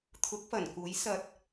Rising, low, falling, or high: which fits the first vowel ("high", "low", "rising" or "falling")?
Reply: rising